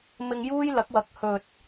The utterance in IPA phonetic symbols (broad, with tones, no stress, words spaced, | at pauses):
mɪ˧ŋjuː˥jlɐ˨˥k̚wɐ˨˥k̚ hɵ˨t̚